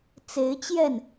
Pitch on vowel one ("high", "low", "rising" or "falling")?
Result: rising